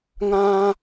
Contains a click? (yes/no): no